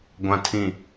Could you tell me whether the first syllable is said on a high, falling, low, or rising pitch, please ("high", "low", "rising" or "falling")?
low